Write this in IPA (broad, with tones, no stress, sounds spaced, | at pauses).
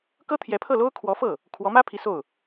k ɤ˥ t̪ʰ j ɛ˧˥ pʰ ɤ˥˩ l o˥ ʊ̯ kʰ w ɔ˧˥ f ɤ˥˩ | kʰ w ɔ˧˥ m ä˥ pʰ i˧˥ s o˥˩ ʊ̯